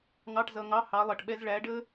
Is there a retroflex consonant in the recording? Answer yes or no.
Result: yes